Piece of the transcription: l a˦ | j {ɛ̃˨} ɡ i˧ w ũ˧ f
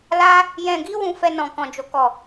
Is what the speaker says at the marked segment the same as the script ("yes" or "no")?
yes